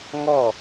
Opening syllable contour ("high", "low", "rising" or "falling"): falling